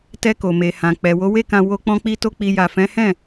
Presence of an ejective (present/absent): absent